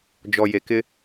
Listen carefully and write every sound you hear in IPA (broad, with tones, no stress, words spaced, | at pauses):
d͡ʒɔ˨je˨kɪ˦